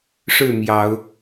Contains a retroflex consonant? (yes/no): yes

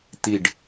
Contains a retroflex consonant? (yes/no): yes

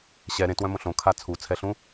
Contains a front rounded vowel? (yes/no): yes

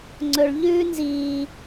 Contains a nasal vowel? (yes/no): no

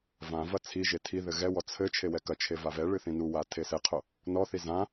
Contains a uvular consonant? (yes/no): yes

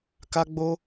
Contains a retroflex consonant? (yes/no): no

